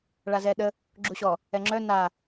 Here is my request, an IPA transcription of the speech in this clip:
ɭazɛɗə | ɡ͡ǁuɕɔ | ɛŋ͡ǁœ na

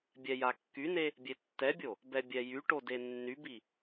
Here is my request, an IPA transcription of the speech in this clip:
bʲɛjakːyne | bʲetːɛbʲo | bɛbʲɛjyʈo denːybi

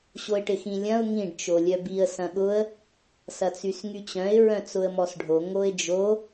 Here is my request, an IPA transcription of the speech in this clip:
ɕoɪ̯ʈɪxĩlʲɐ̃ʊ̯ ŋĩɖ t͡ʃolʲœbiə̯ sɐ̃ɠʊə̯ | sɐt͡sysŋyt͡ɕœ̃ɪ̯ ɹœ̃t͡sʊə̯mɔsɖʱo ŋoɪ̯d͡ʒo

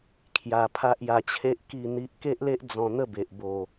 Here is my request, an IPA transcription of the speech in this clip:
kʰja˧ pʰa˦ʔja˧t͡ɕʰe˦ʔ ki˥˧n̪i˦ʔ ke˦ʔle˦ʔ d͡zɔ̃˧n̪ə˥˧be˨ʔ bo˨˩

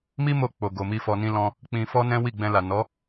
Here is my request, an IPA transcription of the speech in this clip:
mi˦mo˧ k͡po˨ ɡo˨mi˧ fɔ˨nĩ˧lɔ̃˧ | k͡pĩ˧fɔ˦ nɛ̃˦wi˦˨ɡ͡bɛ̃˧la˨ nɔ˨˦

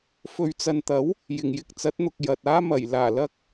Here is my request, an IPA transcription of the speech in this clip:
fɵ˨ɥt͡sɐ˨nt̪ɐ˨˥w | jɪ˨˩ŋjɪ˧k̚t͡sɐ˨˥t̚n̪ʊ˨k̚ jɐ˨t̚ aː˥mɐ˨˩j laː˨˩lɐ˧k̚

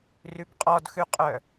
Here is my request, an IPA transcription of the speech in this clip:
rʉbqʼɔdxʉqʼœ

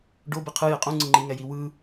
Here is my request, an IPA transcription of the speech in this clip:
ɖo biqʰɯje qʼũ ŋ͡ǀɯŋ͡ǃiŋɛ jiwɯ

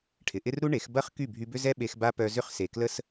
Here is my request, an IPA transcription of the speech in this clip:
ʈʰɪ˨ʔɪ˦rɾu˦ɳe˨˦x bɐ˦χ ky˦˨bʱy˧bʏ˦zɛ˦ ɓe˧xba˦pœ˧zʏ˦χ se˨klə˦s

